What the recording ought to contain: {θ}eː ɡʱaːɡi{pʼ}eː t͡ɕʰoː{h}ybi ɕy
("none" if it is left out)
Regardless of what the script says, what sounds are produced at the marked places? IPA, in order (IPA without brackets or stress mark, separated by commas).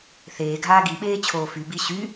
θ, ɓ, f